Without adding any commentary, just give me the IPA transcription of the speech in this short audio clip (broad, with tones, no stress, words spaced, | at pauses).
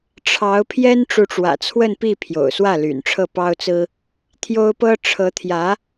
ʈ͡ʂʰɑ˧˥ʊ̯pʰjɛ˥n ʈ͡ʂu˧˥ʈ͡ʂwä̰˨˩t͡sʰwə˥˧npi˥˩ pʰjo̰˨˩ʊ̯swä˥˩ly̰˨˩n ʈ͡ʂʰɤ˥˩pɑ˥ʊ̯t͡sɹ̩˥ | t̪ʰjo˥ʊ̯pɤ˥ ʈ͡ʂʰɤ˧˥t̪ʰjä˧˥